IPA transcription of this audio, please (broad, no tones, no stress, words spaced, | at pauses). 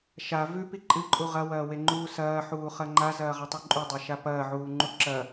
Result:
ʃa vʉpi ǃʼɨǃʼu ʁɐwɐːweŋ͡ǃuː sɐːħuːχɐ ŋ͡ǃazɐːʁɐtˤʉ ǃʼʉdˤɐʃa pɐːʕuːŋ͡ǃu ǁɐ